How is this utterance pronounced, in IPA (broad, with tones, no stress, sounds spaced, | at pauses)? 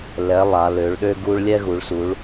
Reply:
l ɛ˨˦ lˠ a˨˦ l ø˨˦ ɭ ɗ ø˥ ɡ u˥ ɭ lʲ ɛ˥ ɣ u˨˦ ɭ s u˨˦ ɭ